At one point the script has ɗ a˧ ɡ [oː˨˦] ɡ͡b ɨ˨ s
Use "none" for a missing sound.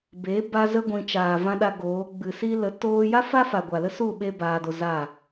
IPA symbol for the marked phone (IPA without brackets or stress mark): oː˨˦